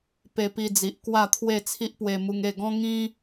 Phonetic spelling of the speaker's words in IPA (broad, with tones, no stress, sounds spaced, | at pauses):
p e˧ p i˧ d͡z i˨ ʔ k w a˥˧ t̪ʰ w e˥˧ t͡sʰ i˦ ʔ p w e˧ m u˧ ŋ e˥˧ ɡ ɔ̃˦ ŋ ĩ˦